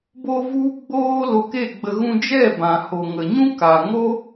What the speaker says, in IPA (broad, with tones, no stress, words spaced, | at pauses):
bo˦vu˦ ɡ͡boː˦lo˧ke˦˨ɡ͡bə˧ ɣũ˧d͡ʒɛ˦˨bã˨ho˨ ŋə˨ɲũ˦ka˨ ŋo˦